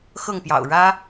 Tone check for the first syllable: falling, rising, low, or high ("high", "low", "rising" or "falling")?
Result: falling